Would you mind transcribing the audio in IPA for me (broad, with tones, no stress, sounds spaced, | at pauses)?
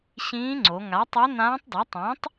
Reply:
ɕ ĩː˧˥ ŋ͡ǀ o˩˧ ŋ a˩˥ tˤ u˧˥ n ãː˧˥ tˤ d ɤ˩˥ tˤ ĩː˩˥ tˤ